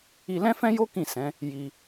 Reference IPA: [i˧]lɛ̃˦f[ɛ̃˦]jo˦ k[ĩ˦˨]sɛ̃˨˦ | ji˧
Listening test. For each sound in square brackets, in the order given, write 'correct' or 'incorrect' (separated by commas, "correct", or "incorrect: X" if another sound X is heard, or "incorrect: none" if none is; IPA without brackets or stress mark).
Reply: correct, correct, correct